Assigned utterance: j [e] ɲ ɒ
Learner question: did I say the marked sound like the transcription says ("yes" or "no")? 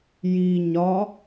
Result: no